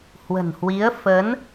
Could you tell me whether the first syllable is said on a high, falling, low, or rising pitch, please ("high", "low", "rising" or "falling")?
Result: low